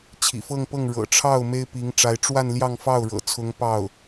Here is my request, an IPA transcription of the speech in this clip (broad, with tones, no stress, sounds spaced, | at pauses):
t͡ɕʰ ḭ˨˩ f ɤ˥˧ ŋ p ɤ˥˩ ŋ ɻ ɤ̰˨˩ ʈ͡ʂʰ ɑ˥˩ ʊ̯ m e˥ ɪ̯ p i˧˥ ŋ ʈ͡ʂ a˧˥ ɪ̯ ʈ͡ʂ w a˥˧ n l j ɑ˥˧ ŋ f ɑ˥˩ ʊ̯ ɻ ɤ̰˨˩ t͡sʰ ʊ˧˥ ŋ p ɑ˥˩ ʊ̯